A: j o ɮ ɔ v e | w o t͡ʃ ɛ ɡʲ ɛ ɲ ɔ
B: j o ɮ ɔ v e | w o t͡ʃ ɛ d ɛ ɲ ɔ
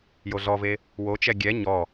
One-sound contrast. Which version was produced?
A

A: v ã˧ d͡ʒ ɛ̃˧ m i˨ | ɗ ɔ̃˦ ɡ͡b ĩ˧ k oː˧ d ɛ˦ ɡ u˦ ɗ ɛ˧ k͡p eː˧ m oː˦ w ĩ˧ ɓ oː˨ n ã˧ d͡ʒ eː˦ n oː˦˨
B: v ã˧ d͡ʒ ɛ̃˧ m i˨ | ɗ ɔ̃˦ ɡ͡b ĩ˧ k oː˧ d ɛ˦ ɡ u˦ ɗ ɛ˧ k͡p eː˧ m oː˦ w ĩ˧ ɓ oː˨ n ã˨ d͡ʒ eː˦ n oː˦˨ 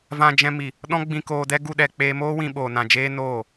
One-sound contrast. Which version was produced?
B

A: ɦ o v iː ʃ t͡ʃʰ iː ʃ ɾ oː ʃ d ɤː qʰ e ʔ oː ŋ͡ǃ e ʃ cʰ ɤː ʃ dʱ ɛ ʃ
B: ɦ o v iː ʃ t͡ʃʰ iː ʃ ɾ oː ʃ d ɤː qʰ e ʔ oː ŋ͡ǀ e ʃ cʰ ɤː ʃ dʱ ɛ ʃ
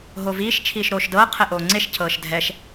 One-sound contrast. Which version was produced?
B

